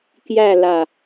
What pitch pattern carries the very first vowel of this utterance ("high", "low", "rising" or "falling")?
falling